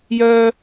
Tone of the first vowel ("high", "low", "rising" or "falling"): low